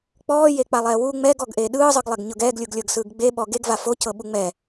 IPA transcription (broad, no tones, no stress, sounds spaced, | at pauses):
k͡p ɔː j e k͡p a lˠ ɛː w u ŋ͡m ɛ ɡ ɔ ɡ ʔ e ɗ ɯː zˤ ɯ ɡ lˠ ɛ ɡ ɲ ɤ ɡ ɛː ɡ lʲ u ɡ lʲ ɤ ɡ s ɯː ɡ ɡ͡b e ɓ ɔ ɡ e ɡ v a f o c ɤ ɓ u ŋ͡m ɛ